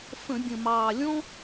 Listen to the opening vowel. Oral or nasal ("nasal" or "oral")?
nasal